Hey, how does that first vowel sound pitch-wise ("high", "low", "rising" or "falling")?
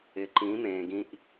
low